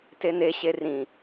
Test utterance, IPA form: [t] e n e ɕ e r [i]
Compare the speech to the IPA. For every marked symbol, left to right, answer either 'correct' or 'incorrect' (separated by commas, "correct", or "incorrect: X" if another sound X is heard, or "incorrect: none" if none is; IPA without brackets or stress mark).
correct, incorrect: ĩ